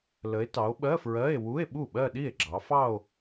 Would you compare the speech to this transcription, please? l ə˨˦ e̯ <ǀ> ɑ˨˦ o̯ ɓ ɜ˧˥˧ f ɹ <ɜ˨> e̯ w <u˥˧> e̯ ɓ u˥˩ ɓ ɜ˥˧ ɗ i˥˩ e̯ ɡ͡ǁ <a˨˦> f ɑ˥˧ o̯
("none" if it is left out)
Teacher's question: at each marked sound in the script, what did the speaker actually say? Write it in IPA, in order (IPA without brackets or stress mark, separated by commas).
t, ɜ˧˥˧, u˧˥˧, ɑ˨˦